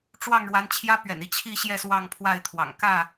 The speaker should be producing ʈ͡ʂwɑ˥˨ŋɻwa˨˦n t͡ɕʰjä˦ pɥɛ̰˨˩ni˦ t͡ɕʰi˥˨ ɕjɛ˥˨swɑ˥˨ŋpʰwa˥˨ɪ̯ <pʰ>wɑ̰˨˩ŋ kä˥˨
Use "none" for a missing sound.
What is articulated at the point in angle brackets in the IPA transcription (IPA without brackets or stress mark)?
t̪ʰ